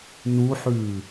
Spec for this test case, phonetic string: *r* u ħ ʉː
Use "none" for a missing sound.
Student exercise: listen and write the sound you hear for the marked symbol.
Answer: n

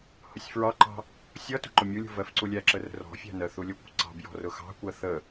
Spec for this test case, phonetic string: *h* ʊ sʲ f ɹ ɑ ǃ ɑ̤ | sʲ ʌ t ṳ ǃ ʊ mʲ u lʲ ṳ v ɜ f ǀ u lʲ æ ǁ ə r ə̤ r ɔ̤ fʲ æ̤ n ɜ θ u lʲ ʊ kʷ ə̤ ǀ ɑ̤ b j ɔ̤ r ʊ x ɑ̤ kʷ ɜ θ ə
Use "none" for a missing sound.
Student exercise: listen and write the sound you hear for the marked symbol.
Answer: h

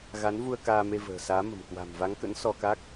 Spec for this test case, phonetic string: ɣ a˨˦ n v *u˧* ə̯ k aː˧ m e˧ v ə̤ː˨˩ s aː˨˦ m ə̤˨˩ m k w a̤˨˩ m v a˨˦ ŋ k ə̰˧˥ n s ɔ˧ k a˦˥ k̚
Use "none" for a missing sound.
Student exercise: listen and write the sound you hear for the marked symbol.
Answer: u˧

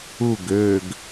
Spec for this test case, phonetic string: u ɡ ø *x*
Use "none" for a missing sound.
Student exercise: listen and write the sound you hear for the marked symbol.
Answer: ɡ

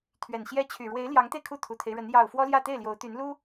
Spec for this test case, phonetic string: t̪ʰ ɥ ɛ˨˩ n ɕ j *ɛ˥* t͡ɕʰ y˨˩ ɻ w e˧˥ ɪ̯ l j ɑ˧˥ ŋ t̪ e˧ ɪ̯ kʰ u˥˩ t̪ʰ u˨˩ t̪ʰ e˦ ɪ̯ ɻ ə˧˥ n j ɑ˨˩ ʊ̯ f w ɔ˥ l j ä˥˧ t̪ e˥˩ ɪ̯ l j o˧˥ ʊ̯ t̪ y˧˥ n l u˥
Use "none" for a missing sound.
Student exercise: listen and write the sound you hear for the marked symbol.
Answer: ɛ˥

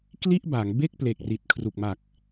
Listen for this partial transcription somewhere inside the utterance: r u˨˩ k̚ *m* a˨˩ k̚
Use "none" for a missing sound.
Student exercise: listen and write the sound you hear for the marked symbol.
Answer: m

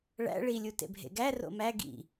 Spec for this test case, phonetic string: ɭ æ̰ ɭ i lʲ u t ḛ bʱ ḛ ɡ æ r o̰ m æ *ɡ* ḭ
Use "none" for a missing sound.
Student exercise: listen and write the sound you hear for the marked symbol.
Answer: ɡ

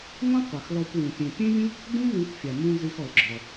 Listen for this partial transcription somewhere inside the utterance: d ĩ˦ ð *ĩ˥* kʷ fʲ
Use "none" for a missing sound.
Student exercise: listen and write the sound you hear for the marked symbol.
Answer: ĩ˨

